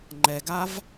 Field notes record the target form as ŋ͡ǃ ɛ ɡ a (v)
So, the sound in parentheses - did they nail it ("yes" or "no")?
yes